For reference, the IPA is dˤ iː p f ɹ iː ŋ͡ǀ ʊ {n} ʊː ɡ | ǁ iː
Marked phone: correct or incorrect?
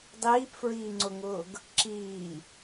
incorrect